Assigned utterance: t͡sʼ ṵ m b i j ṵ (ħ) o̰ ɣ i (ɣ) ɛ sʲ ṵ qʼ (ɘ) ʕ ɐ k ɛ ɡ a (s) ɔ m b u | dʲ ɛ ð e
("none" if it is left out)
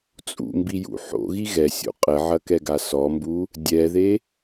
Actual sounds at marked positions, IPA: ħ, ɣ, ɘ, s

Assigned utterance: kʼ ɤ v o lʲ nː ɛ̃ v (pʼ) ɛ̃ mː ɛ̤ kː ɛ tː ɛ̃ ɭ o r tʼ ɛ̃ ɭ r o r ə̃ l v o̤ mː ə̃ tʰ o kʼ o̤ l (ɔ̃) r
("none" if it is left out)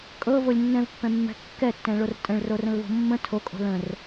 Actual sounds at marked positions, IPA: pː, ə̃

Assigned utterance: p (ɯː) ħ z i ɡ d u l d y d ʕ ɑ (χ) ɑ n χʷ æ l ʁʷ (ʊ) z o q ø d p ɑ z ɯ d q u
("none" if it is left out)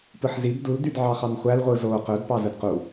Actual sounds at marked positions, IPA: ɯ, χ, ɯ

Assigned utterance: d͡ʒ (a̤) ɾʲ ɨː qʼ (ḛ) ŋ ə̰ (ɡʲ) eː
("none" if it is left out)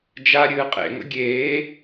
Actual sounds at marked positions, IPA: a, ḛ, ɡʲ

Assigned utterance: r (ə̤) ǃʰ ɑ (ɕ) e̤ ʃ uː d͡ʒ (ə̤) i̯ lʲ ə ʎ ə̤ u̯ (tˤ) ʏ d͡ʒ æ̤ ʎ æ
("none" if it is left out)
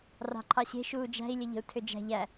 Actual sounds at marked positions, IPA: ɑ̤, ɕ, æ̤, tʰ

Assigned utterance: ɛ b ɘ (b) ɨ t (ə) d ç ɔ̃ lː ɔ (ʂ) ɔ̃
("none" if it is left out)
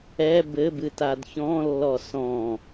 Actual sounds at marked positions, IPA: b, a, s

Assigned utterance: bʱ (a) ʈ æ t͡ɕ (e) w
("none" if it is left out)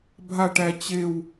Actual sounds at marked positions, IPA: a, e

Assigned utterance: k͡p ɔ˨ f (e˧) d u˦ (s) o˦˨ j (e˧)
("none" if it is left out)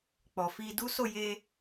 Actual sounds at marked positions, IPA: i˧, s, e˧

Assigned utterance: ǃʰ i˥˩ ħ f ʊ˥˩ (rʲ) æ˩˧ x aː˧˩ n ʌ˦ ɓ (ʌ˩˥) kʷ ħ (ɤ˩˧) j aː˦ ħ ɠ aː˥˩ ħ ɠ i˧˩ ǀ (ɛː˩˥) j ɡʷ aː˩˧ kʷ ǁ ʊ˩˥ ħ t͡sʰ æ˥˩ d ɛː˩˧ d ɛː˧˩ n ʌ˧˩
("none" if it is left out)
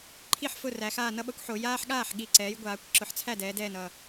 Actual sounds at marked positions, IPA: r, ʌ˩˥, o˩˧, ɛː˩˥

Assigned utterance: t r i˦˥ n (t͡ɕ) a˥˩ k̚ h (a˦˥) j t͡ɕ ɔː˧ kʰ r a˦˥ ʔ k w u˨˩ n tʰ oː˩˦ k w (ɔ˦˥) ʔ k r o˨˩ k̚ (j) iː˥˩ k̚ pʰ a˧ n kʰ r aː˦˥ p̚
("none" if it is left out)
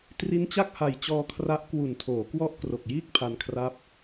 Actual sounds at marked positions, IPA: t͡ɕ, a˨˩, ɔ˦˥, j

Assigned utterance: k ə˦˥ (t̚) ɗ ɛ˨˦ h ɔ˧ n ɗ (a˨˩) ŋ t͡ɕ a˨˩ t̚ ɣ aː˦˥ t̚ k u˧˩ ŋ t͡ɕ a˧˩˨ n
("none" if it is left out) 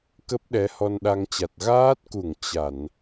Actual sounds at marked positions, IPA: p̚, a˧

